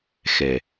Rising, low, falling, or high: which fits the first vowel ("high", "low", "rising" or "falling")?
low